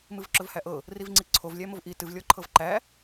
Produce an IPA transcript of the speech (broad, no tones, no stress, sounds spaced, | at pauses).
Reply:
m ɨ v ǁ ɵ v h æ ʔ ɤ | r i v ŋ͡ǀ i ǀʰ o v lʲ æ m o v ʔ i t ɨ v lʲ ɔ ǃʰ ɤ v ǃ æ